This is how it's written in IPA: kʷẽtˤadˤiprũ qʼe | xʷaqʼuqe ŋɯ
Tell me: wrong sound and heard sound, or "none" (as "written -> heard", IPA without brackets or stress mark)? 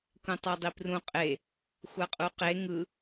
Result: none